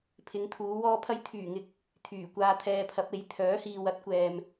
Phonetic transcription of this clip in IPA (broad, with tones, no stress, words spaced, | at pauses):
pʰɪ˨˧ŋt̪ʰuː˨˧ wɔː˧pʰɐ˧j t̪ʰyː˨˩ŋɪ˨˥k̚ | t̪ʰyː˨˩kʷaː˧t̪ʰɛː˧pʰɐ˨˥p̚ e˨˥j t̪ʰœː˨˥hiː˨wɐ˥t̚kʷɛː˨m